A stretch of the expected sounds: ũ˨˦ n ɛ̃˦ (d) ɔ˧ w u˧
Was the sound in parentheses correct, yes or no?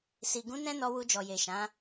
no